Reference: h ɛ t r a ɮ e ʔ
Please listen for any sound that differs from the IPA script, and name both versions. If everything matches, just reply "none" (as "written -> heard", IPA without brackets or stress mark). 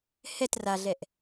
e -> ɛ